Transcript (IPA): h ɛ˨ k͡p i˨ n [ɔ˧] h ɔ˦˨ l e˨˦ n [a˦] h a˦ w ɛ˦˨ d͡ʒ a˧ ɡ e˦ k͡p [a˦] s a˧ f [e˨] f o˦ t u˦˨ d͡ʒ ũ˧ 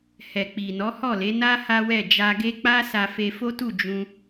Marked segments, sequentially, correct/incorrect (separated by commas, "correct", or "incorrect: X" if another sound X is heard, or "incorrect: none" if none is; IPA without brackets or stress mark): incorrect: ɔ˨˦, correct, correct, incorrect: e˧